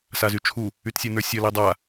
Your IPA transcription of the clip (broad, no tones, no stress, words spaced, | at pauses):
sazyt͡ʃʰu | ytsʲə˞nə˞sʲʌ lidˤa